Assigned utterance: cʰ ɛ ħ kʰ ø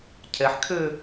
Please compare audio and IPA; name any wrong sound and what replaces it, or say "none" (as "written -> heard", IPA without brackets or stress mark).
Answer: none